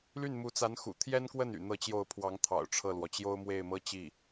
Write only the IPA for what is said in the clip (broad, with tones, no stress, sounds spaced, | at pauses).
l y˥˩ n m u˧˥ t͡s a˧˥ n x ṵ˨˩ t̪ʰ j ɛ˥ n k w ə˥˩ n y̰˨˩ n̪ ɤ˥˧ t͡ɕ j o˥˩ ʊ̯ pʰ w ɑ˧˥ ŋ t̪ʰ ɑ̰˨˩ ʊ̯ ʈ͡ʂʰ ɤ˥˩ l w ɔ˩ t͡ɕ j o˥ ʊ̯ m w e˥˩ ɪ̯ m ɤ˥ t͡ɕ i˥˩